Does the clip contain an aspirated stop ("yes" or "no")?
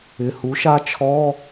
yes